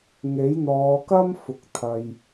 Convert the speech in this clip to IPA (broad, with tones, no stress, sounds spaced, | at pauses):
ŋ e˨˥ j n̪ ɔː˨˧ k ɐ˥ m f ʊ˨ k̚ t̪ʰ ɐ˨ j